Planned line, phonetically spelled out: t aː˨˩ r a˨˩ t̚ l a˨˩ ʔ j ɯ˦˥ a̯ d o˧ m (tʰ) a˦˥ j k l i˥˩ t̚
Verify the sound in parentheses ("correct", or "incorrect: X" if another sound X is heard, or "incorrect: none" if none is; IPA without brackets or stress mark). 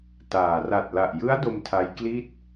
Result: correct